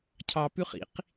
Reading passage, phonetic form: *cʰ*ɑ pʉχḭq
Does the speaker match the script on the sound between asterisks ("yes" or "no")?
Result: yes